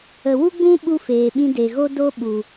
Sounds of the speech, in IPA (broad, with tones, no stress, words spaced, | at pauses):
ə˨wu˦ɡ͡bũ˦ɓu˧ feː˨ɓĩ˧de˨ɣo˦ do˦ɓu˨